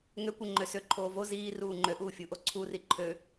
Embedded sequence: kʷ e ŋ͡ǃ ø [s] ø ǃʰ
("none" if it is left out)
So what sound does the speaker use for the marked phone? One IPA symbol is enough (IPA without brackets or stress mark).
s